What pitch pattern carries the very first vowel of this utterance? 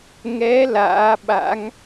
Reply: rising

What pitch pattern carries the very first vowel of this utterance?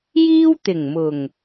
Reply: high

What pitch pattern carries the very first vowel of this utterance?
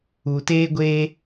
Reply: low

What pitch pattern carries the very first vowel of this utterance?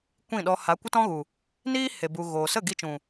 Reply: falling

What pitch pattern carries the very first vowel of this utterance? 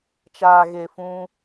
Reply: low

